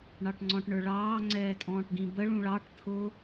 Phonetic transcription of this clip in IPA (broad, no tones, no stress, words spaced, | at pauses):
ɳɑʈŋ͡ǀɔ̃ʈɳə˞ɭɑː ŋ͡ǀɛːtʼɔ̃ːʈɡĩbə ɭũɭɑʈ t̪ʰʊ